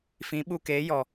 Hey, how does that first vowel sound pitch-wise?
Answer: rising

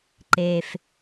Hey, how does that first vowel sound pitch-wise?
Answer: low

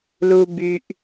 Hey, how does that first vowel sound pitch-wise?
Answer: low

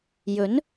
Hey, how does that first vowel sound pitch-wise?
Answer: rising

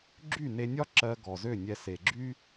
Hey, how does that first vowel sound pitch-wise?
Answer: falling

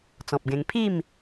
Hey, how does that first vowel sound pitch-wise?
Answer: low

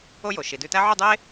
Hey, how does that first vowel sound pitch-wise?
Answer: high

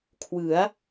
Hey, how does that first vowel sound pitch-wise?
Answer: rising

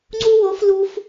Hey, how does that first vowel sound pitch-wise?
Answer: high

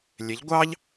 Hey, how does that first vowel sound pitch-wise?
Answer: rising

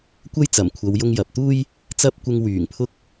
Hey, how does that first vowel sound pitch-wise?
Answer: high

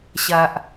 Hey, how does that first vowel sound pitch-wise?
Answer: low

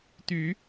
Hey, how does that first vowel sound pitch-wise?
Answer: rising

